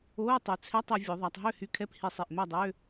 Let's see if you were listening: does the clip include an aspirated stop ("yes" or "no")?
yes